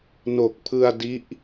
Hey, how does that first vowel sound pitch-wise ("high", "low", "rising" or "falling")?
low